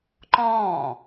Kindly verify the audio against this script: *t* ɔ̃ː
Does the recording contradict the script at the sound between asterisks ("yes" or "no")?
yes